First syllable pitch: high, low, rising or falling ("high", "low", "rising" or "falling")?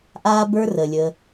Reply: high